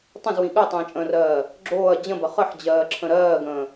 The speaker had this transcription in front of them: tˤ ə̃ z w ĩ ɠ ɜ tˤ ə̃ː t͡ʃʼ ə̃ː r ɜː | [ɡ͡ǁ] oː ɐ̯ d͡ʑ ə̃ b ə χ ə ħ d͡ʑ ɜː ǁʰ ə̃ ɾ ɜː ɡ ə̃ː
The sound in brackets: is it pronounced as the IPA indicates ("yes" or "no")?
yes